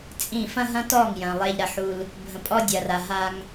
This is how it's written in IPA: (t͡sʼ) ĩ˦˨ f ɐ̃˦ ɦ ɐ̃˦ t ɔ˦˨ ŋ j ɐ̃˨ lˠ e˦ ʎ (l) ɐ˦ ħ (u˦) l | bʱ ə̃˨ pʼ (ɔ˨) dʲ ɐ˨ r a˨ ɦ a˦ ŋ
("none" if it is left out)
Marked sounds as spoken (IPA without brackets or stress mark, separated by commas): t͡sʼ, ɾ, u˦, ɔ˦